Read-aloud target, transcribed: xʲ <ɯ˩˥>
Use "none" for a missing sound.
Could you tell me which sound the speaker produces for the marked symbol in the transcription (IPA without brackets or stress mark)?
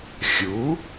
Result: u˩˥